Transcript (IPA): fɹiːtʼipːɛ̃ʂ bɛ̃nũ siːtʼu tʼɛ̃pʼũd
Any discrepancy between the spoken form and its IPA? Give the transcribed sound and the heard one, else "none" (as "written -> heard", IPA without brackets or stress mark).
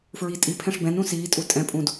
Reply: pː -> pʰ